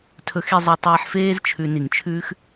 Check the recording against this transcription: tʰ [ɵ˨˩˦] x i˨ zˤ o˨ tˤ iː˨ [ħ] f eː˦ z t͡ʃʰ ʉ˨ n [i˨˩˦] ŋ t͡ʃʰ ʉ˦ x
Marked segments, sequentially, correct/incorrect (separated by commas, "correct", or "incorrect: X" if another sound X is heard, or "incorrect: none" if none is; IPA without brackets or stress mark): correct, correct, correct